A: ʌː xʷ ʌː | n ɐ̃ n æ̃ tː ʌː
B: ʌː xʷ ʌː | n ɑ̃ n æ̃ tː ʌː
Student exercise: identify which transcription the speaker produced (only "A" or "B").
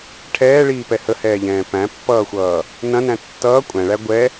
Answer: A